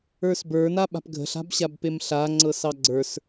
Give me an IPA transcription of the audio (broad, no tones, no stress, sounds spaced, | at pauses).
ə˞ s b ə˞ n a ɓ a̤ p ɡʱ ə̤ ɬ a̤ b ɕ a b p e m ɬ a ŋ͡ǀ ɤ s ɑ ɡ͡ǀ ə˞ s